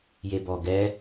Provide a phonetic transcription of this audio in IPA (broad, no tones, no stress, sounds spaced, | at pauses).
j e b ɔ ɡ ɛ